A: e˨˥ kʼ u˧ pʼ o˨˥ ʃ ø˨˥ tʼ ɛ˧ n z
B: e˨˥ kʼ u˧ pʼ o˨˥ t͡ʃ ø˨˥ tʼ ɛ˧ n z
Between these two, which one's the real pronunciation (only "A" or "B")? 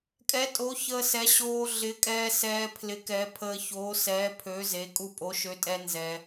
A